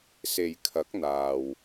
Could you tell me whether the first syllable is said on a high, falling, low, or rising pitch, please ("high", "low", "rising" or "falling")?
low